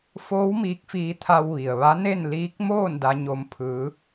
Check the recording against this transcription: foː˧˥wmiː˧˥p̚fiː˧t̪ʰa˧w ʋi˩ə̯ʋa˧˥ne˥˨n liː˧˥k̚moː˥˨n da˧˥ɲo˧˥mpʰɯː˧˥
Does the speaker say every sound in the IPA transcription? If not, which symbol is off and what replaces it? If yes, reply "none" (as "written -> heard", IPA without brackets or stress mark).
p̚ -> k̚